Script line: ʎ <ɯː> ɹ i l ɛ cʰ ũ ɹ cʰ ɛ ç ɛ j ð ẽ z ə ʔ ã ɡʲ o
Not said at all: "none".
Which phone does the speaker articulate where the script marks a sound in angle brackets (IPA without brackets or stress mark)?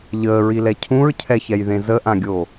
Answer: əː